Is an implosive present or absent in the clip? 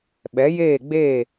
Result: present